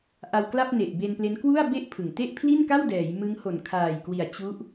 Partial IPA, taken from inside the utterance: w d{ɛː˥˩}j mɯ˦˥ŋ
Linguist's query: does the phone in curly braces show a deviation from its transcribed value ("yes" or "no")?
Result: yes